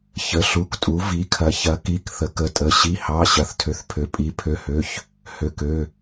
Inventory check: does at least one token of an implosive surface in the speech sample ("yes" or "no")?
no